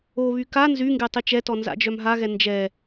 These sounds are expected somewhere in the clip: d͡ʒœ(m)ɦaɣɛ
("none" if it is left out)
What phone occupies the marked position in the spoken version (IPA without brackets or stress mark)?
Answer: m